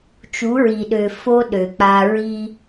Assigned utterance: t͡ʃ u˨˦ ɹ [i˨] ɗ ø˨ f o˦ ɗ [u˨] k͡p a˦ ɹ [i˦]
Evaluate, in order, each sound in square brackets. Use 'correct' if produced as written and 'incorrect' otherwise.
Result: correct, incorrect: ø˨, correct

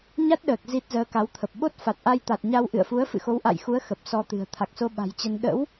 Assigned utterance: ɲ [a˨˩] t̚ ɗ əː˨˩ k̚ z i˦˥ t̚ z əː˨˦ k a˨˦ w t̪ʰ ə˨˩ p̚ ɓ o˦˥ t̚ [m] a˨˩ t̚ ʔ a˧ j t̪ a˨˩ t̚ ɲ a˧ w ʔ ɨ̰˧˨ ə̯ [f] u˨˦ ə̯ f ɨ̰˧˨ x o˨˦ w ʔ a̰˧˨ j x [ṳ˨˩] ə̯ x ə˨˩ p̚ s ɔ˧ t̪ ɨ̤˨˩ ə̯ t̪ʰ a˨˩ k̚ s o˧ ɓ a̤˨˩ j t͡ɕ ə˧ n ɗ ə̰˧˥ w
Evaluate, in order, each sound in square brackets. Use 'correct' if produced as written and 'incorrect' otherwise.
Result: incorrect: a˦˥, incorrect: f, correct, incorrect: u˨˦

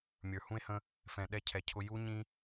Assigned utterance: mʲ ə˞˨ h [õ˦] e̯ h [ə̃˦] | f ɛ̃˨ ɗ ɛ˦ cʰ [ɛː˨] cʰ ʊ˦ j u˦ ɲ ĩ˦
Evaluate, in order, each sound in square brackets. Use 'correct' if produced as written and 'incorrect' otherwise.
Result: incorrect: ũ˦, correct, incorrect: ɛ˨

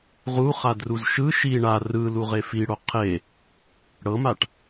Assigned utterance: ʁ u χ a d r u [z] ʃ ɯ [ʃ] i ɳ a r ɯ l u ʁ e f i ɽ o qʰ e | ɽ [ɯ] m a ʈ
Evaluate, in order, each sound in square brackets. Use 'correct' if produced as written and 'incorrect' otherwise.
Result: correct, correct, incorrect: ɤ

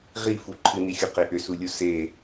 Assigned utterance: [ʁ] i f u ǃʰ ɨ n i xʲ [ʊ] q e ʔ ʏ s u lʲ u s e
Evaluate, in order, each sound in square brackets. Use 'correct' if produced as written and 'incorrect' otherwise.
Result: correct, correct

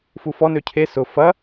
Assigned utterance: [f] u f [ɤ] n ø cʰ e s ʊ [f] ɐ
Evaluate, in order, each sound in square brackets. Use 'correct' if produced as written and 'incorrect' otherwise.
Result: correct, incorrect: ɔ, correct

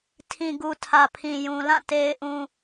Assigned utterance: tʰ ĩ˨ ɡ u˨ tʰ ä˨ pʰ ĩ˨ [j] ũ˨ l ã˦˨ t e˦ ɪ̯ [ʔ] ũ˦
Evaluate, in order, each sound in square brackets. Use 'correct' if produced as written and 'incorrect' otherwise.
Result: correct, correct

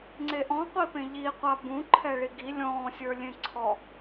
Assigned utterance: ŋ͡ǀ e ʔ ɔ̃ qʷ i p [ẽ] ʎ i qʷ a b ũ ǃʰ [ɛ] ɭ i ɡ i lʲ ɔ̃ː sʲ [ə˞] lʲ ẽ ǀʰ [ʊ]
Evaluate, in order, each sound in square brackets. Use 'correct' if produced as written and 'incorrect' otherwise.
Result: correct, correct, correct, incorrect: ɔ

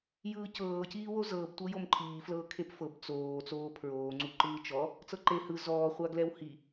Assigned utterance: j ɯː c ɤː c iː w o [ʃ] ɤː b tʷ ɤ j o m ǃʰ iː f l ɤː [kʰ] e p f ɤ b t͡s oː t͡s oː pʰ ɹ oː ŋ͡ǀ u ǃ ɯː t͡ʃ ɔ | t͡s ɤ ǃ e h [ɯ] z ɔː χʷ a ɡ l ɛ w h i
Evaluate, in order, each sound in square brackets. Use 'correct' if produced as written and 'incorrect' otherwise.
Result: incorrect: z, correct, correct

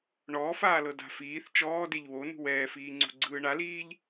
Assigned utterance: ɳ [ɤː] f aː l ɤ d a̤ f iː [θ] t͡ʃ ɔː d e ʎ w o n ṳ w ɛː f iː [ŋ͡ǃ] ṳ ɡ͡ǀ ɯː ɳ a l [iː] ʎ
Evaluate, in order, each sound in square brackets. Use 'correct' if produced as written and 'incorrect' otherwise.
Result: incorrect: ɔː, correct, incorrect: ŋ͡ǀ, correct

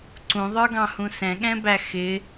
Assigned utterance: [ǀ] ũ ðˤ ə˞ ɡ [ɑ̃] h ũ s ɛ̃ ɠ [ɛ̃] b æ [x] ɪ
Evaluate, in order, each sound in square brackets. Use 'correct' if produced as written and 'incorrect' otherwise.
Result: correct, correct, correct, correct

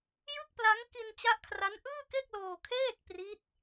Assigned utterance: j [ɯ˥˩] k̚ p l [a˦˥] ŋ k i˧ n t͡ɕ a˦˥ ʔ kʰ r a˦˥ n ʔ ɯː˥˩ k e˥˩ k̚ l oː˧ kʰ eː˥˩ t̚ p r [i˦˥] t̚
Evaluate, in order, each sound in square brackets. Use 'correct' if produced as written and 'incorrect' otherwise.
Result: correct, correct, correct

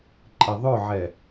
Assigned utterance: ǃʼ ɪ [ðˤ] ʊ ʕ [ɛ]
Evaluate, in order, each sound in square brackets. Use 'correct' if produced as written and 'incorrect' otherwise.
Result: correct, correct

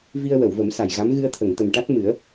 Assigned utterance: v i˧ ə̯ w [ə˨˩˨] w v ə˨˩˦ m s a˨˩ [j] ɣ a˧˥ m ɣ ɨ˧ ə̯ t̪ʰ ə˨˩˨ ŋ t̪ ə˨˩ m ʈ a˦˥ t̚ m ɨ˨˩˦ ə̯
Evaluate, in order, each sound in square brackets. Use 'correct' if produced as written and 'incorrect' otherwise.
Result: correct, correct

